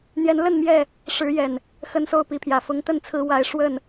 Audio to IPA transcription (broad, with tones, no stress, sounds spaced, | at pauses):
n̪ j ɛ˨˦ n l ə˥˨ n m j ɛ˥˨ | ʂ ɻ̩˨˦ j ɛ˨˩ n | x ə˦ n s o˦ ʊ̯ p i˨˦ pʰ j ä˨˩ f ʊ˨˦ ŋ t̪ ə˥˨ n t͡sʰ ɹ̩˨˦ w a˨˦ ɪ̯ ʂ w ə˥˨ n